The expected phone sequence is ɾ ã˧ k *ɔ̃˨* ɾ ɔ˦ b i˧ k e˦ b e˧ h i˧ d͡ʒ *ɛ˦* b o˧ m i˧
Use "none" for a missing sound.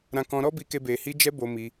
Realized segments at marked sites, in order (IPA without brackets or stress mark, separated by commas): ɔ̃˧, ɛ˧